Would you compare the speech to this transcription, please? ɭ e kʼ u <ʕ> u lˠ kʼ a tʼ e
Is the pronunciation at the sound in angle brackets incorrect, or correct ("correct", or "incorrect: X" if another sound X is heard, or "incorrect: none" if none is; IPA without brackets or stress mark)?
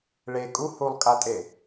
incorrect: h